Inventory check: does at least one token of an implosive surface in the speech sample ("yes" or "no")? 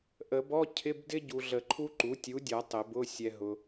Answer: no